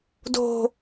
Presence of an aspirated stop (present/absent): absent